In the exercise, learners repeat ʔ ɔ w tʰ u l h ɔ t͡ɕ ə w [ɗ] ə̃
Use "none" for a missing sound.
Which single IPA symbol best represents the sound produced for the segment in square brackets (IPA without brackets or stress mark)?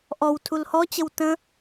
t